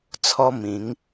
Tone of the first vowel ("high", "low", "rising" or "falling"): high